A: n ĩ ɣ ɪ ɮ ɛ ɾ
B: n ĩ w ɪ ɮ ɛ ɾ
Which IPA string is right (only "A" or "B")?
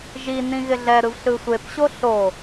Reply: A